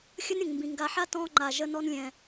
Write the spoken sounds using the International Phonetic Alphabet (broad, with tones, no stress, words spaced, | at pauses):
xʲə˦nɾʲə̃˨ŋ mbĩ˨ŋɡa˧ħa˦ tɔ̃˧ŋ͡ǃa˨ʒə˧ nɔ˦nlʲɛ̃˧